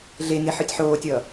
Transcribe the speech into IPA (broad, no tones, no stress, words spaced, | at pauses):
ɮeŋe ħɯtʲħoːtʲʌː